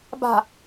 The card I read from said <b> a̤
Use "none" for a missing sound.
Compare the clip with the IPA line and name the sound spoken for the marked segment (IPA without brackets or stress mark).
b